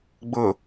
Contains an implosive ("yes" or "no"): no